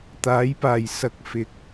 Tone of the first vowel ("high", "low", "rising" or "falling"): rising